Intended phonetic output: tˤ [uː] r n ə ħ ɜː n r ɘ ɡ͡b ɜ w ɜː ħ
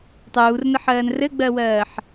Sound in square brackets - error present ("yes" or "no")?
no